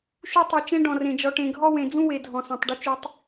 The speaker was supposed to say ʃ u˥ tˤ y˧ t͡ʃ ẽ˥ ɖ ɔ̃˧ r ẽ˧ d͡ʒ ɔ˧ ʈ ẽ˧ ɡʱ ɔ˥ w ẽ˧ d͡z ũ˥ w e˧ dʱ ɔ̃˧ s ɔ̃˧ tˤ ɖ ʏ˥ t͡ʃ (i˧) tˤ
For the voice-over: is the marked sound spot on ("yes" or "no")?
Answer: no